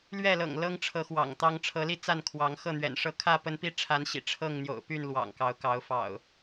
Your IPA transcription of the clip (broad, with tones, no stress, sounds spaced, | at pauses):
l ɥ ɛ˥˨ l ɤ̰˨˩ ŋ l ɤ˦ ŋ ʈ͡ʂʰ ɤ˨˦ x w ɑ̰˨˩ ŋ t̪ ɑ˦ ŋ ʈ͡ʂʰ ɤ˨˦ l i˥˨ t͡s a˥˨ n kʰ w ɑ˨˦ ŋ x ɤ˥˨ n̪ ɥ ɛ̰˨˩ n ʂ ɤ˥˨ kʰ ä˥˨ p ə˦ n p i˦ ʈ͡ʂʰ a˨˦ n ɕ ḭ˨˩ ʈ͡ʂʰ ɤ˥˨ ŋ n̪ j o̰˨˩ ʊ̯ p y˥˨ n l w ɑ̰˨˩ ŋ k ɑ˨˦ ʊ̯ k ɑ˨˦ ʊ̯ f ɑ̰˨˩ ʊ̯